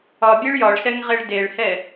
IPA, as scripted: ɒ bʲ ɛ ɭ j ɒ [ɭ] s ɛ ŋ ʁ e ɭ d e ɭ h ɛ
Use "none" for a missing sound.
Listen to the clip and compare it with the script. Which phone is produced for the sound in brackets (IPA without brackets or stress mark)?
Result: ɭ